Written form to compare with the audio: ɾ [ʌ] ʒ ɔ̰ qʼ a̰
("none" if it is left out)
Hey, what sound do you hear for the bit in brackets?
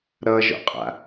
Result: ʌ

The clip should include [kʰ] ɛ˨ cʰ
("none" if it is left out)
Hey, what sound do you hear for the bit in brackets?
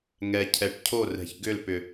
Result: ŋ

